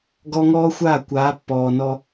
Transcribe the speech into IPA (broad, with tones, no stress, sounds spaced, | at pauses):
ɡ ɔ˦ ŋ ɔː˦ xʷ aː˦˨ kʷ aː˨˦ pː ɔː˨ n ɔ˧